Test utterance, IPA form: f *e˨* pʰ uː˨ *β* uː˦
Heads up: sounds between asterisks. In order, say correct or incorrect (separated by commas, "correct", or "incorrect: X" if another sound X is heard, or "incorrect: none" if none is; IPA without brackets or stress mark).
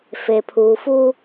correct, incorrect: f